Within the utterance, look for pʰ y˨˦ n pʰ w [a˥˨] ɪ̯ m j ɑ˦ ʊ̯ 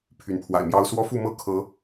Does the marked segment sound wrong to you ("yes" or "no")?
yes